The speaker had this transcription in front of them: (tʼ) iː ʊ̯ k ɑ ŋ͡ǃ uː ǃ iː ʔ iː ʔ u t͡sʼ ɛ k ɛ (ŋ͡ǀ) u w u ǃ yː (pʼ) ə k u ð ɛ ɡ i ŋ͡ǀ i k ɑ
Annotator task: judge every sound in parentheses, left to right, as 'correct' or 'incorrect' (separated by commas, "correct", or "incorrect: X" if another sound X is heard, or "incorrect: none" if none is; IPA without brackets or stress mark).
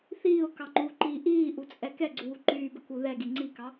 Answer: incorrect: θ, incorrect: ɡ͡ǀ, incorrect: b